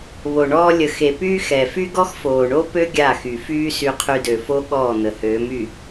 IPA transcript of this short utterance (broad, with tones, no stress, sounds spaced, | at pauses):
β o˨ ɳ ɔː˦ lʲ ə˨ x e˨ p yː˦ x ɛ˨ f y˦ ɡ ɔ˦ x f oː˨ ɳ o˦ p ø˦ ɡʲ a˦˨ x y˨ f yː˦ s y˦ qʰ y˦ d ø˨ f o˦ ɠ ɔː˦˨ n̪ ə˨ h øː˨˦ m y˨